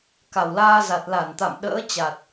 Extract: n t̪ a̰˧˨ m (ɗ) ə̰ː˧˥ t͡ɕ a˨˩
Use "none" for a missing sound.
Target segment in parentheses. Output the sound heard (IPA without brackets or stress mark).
ɗ